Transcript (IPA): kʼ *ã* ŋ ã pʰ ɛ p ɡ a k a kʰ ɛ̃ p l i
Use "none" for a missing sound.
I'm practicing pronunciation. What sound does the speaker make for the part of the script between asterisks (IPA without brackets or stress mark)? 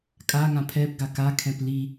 a